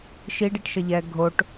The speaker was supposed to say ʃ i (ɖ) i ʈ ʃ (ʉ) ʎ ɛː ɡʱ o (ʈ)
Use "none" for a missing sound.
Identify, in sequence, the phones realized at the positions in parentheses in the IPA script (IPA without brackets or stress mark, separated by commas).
ɖ, ə, ʈ